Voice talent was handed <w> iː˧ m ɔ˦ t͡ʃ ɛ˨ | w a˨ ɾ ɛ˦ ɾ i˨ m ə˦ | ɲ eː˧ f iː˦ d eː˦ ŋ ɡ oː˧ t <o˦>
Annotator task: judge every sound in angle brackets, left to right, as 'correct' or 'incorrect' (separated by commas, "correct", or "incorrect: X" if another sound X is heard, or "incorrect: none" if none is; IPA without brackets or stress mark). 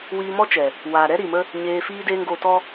correct, incorrect: ɔ˦